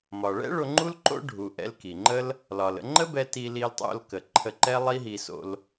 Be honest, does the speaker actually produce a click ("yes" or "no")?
yes